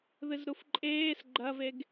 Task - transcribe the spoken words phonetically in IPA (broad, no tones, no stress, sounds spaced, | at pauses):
ð ɨ z ɾ u f ǃʼ eː s ɡ͡ǃ ɐ v e ɡ